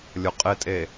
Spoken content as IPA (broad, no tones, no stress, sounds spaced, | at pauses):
lʲ o qʼ ɪ tʼ e